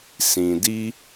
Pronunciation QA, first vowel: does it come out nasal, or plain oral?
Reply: nasal